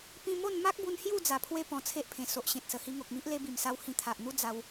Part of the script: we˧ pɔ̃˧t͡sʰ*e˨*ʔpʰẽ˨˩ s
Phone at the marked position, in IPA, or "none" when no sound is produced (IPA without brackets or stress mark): e˦